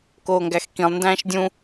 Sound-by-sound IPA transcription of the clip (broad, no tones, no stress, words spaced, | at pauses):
koːŋɡæxkĩlˠ ndæ̃ːʃdʲũ